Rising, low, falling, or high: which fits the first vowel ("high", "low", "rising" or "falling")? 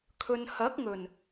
low